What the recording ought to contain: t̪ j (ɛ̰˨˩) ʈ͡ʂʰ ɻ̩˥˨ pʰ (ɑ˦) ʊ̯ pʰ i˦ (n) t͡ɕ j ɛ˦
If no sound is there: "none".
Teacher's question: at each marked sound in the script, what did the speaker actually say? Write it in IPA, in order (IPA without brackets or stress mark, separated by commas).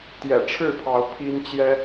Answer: ɛ̰˨˩, ɑ˨˦, n